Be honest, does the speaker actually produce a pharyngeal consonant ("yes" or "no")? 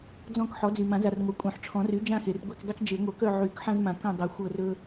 yes